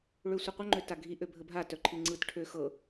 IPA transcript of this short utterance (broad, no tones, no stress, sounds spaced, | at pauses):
ɭ ø sʷ œ qʷ ə ŋ͡ǃ ø t a ɡʱ i ʔ ø bʱ ə bʱ a t œ ǃʰ i ŋ͡ǀ ɯ t ʈʰ ø x ɤ